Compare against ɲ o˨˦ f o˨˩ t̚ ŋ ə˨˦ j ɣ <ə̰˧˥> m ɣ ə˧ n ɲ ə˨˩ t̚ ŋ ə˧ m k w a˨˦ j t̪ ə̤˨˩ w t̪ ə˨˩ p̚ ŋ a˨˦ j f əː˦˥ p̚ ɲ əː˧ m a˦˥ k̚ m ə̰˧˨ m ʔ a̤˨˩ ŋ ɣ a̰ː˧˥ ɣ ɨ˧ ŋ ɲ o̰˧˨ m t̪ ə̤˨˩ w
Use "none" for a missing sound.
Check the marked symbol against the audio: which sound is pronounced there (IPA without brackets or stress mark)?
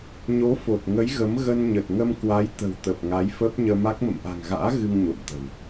ə˨˦